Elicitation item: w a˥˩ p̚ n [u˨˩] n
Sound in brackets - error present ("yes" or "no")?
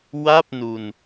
yes